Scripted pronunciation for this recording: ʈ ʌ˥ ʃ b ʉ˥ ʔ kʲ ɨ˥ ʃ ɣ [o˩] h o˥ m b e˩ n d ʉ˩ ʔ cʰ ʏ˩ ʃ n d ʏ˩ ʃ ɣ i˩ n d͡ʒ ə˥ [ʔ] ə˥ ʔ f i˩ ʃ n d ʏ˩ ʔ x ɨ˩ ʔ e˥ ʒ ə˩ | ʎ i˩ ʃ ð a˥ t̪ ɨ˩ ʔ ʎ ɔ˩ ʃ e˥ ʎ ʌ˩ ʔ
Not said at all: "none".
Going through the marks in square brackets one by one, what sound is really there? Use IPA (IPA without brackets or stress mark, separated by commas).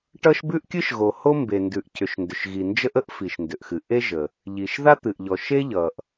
o˩, ʔ